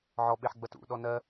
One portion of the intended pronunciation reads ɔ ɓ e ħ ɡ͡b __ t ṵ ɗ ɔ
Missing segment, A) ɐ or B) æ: A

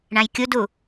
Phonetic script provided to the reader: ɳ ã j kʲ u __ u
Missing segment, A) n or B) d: B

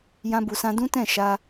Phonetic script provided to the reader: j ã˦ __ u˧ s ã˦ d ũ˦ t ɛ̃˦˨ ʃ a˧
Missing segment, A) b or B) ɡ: A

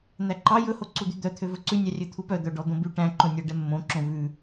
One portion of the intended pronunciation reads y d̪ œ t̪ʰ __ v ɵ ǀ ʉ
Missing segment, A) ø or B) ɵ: A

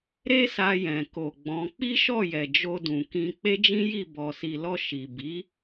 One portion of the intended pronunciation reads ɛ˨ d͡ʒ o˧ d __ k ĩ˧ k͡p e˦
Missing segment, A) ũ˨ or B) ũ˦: A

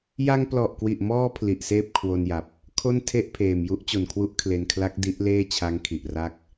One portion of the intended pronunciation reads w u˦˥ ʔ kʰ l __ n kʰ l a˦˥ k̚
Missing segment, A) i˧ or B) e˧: B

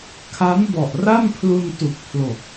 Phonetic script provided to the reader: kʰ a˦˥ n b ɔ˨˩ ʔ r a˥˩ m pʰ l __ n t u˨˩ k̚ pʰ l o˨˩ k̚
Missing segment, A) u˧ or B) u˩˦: A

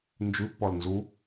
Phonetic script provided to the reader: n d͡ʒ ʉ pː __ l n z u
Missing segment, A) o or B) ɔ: B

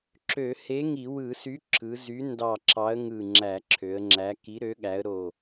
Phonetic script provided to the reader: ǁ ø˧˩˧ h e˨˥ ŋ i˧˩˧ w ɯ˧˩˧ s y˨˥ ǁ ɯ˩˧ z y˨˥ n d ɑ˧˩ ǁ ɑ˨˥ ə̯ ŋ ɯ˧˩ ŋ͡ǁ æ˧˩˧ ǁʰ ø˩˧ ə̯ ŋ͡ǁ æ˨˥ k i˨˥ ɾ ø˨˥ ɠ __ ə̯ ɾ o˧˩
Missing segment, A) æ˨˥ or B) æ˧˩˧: A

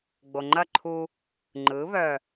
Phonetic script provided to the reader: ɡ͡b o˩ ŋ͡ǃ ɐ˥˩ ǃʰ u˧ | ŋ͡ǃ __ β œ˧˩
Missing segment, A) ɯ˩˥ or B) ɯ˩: A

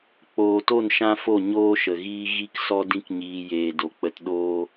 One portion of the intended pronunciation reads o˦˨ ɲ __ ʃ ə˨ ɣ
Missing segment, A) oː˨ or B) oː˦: B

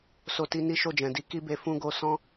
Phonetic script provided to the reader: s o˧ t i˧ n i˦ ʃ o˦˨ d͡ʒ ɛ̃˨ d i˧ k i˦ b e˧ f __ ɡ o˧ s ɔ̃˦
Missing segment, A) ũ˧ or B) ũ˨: A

